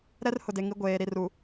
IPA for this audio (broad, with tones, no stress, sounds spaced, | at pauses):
ɾ ɛ˦ r h ʊ˨ d e˨ ŋ i˨˦ ɡʷ eː˨ ɾ i˨ r u˨